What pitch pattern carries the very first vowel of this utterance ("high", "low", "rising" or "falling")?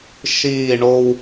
falling